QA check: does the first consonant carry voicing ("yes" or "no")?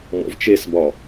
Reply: yes